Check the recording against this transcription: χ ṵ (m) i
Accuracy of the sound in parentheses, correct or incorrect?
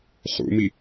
correct